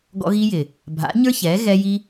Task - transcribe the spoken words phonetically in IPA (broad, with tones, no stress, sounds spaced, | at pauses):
ɡ ɔ̰˧ ɣ i˧ j ɪ˨ | bʱ a̰˨˦ ɲ ə˞˦ ç ɛ˨˦ ɣ ɛ˧ j i˧